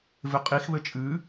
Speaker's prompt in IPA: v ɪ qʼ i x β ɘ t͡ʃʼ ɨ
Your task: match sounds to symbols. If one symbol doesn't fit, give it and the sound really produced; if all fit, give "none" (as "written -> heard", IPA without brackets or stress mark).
none